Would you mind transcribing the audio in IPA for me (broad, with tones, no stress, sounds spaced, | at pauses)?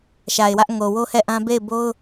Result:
ʃ a˨ ɪ̯ w ä˦ ʔ ŋ o˨ w o˦ h ɛ˦˨ ʔ ã˦ b e˦˨ ɪ̯ b o˦ ʊ̯